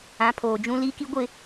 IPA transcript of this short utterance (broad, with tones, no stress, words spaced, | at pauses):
ã˨˦ pʰoː˨d͡ʒũ˦ li˦ki˦ɡʷɪ˦˨